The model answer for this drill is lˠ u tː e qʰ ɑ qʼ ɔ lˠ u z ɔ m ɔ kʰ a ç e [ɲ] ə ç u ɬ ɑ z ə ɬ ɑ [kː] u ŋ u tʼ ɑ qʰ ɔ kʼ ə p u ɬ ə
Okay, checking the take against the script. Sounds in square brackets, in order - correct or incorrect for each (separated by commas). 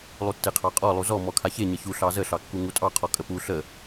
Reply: correct, correct